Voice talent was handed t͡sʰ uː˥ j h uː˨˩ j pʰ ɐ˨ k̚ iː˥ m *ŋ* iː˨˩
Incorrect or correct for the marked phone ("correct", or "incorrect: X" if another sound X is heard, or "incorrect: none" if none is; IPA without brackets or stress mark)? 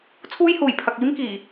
incorrect: k